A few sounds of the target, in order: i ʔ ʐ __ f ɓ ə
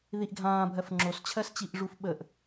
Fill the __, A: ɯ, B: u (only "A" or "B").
B